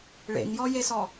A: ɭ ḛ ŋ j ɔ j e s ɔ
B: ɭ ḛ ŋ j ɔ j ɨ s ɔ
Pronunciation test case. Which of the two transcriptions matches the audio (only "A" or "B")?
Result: A